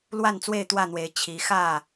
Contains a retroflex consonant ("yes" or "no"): no